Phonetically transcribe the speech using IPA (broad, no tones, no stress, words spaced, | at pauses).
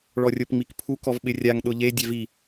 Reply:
ɭɔrʲopŋ͡mikpʰuk ɔvɓɪrʲaŋ ɗʊʎe dʲɛvi